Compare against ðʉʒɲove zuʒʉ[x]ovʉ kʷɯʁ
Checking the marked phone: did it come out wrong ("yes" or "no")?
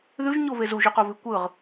yes